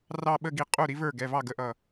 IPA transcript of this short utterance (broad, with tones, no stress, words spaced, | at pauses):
rɑ˥˧ɓə˥˧ɡi˧ qʼu˥˩ ɾi˩˧və˞˧˩ ɡɛ˩˧˩vɑ˥˩ɡə˥˩ʔʌ˧˩